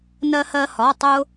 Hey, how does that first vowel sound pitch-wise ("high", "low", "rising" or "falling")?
high